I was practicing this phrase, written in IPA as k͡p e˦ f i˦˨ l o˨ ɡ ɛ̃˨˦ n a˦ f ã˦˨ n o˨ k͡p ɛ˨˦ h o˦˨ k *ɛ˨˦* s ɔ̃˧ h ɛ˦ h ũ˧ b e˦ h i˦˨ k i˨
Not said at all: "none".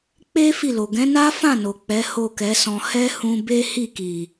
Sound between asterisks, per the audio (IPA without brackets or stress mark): ɛ˨˦